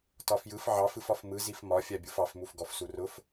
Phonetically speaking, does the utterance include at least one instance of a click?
no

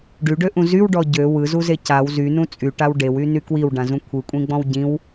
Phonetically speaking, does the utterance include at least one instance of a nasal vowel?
yes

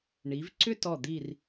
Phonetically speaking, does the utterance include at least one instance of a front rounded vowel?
yes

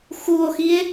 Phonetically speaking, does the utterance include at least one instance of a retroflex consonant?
no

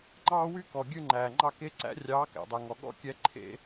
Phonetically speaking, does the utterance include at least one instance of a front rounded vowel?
yes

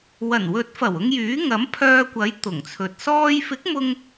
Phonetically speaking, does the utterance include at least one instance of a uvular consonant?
no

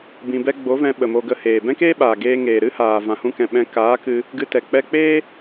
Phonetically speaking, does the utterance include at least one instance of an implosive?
yes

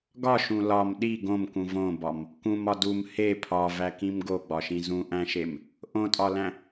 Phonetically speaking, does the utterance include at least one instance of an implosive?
yes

